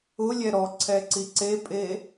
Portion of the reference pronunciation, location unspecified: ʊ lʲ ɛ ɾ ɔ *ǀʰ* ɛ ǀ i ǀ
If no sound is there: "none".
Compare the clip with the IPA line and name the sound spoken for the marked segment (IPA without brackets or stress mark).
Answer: ǀʰ